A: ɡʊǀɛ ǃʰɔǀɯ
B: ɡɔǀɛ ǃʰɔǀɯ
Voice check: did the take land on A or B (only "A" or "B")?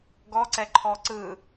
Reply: B